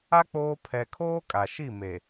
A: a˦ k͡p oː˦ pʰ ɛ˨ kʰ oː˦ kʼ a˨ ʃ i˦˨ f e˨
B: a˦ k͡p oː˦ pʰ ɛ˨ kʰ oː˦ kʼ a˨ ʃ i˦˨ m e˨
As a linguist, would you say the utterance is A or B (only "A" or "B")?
B